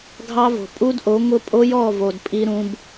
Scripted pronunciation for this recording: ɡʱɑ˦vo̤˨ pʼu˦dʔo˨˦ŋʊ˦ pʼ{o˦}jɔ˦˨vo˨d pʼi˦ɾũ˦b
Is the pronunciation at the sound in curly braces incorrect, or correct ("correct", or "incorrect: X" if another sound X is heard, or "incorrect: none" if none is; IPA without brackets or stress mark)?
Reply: correct